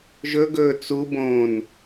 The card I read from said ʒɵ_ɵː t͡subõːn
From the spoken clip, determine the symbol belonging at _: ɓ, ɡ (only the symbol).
ɡ